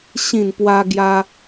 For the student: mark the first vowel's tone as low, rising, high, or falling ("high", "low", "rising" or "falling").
falling